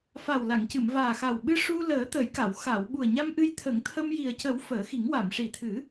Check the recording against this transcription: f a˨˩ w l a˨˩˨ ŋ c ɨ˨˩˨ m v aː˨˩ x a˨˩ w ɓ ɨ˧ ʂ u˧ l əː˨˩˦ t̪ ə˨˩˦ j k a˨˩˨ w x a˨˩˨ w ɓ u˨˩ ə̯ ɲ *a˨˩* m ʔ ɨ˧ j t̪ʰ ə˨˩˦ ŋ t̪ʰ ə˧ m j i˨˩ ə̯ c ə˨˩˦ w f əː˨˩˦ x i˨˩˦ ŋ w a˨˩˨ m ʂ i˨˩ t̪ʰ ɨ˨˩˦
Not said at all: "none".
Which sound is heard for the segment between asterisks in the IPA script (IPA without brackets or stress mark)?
a˧